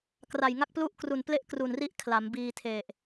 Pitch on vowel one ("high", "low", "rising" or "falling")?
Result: low